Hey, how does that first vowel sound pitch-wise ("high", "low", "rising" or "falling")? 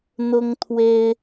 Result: high